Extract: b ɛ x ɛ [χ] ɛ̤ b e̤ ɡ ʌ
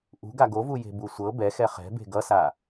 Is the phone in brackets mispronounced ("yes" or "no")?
no